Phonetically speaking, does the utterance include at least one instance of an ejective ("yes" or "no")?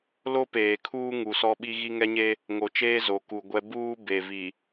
no